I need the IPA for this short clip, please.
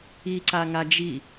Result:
iǀaŋa d͡ʒi

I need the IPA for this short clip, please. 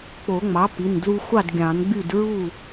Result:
k͡po˨˩˦ŋ͡mɑ˩˥pi˩˧˩ndlu˧ xʷɑ˥˩dɡʲɑ̃˨˩˦nɡ͡by˥˩d ɹu˥˩

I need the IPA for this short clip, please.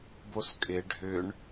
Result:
boskʼɪ ɖʱʏɳ

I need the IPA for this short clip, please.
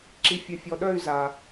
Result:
ǁi˨fʲœ˨fʲɔ˨ɗœ˦˨y̯ za˨

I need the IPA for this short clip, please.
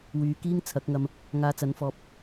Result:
wyː˨˧kiː˥ŋ t͡sʰɐ˨˥k̚ŋɐ˧m | ŋaː˧t͡sɐ˨˥nfɔː˧p̚

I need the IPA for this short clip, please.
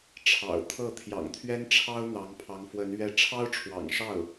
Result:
ʈ͡ʂʰɑ̰˨˩ʊ̯ t̪ʰɤ˥˩ t̪ʰjɑ̰˨˩ŋt̪ʰɥɛ˥nʈ͡ʂʰɑ˥ʊ̯ n̪ɑ˧˥ŋpʰɑ˧˥ŋ fwə˧˥n ɥɛ˥˩ ʈ͡ʂʰɑ˥ʊ̯ʈ͡ʂʰwɑ̰˨˩ŋʂɑ˥˩ʊ̯

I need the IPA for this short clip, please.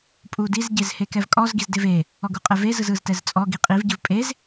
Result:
pʼudiz ɟezhekɛvkʼɔz ɡizdeve | ɔɡuqʼɛve zɯzɯztɛzt͡sʼɔ ɡiqʼiv ɟɯvpʼez

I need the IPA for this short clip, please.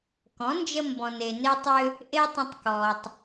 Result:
kɔ̃˨˦nd͡ʒə˧ mbɔ̃˨ne˨ne˧tˤʏ˧ | ʔe˦tˤə̃˧tˤkɔ˨tˤ

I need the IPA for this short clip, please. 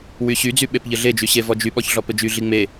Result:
wyɕyd͡zy ɓepʎɘɮed͡ʒy ɕevɔd͡ʒyɓɔç ɮɔpɘd͡ʒyɮi ŋ͡me

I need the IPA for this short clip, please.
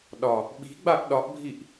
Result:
ɗɒ | ɓi̤ɡ͡baʔ ɗɒʔbʱiʔ

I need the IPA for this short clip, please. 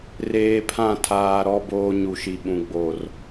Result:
reː˨pʰã˦˨tʰaː˨ɾɔ˦ boː˦ɲu˨ʃi˨ɓũ˨ ɡ͡bo˨r

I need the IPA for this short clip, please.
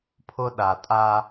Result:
pʰʊ˦ɗa˨tʼa˦

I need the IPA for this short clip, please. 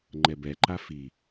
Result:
ŋ͡ǃɛbɛǃa fi

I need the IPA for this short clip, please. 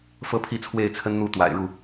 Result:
fɤ˦pʰi˥˨ t͡sʰwe˥˨ɪ̯t͡sʰə˦nn̪u˥˨ t̪wa̰˨˩ɪ̯ɻu˥˨

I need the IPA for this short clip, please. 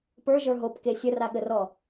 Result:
pə˞ʒə˞ ɦopke sʲəraɠərɔ

